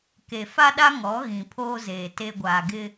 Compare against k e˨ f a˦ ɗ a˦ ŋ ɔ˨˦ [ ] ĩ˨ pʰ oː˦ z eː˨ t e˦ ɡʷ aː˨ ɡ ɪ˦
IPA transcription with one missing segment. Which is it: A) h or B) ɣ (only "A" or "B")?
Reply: B